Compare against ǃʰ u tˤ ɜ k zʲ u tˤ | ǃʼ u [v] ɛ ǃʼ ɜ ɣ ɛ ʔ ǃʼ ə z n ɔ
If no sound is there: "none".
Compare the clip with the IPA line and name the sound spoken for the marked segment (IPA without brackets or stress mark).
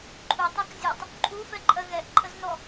f